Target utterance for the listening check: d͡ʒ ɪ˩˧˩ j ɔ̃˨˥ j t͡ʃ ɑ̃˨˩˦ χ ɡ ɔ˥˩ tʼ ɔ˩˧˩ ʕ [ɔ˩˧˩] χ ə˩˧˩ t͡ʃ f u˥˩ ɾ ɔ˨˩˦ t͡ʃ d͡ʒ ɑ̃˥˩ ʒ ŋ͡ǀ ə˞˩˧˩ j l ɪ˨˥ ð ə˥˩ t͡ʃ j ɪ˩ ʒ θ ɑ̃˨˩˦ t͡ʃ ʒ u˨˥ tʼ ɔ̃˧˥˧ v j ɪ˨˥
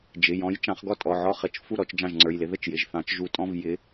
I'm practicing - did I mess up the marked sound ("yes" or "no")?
yes